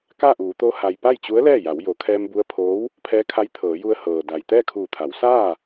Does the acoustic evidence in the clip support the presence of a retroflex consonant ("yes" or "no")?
no